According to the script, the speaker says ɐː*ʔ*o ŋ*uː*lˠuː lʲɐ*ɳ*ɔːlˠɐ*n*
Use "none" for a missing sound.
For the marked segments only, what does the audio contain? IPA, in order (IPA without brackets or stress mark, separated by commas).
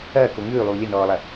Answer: k, ʉː, n, none